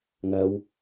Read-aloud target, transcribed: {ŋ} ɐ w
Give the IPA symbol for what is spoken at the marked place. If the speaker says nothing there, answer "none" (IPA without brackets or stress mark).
ŋ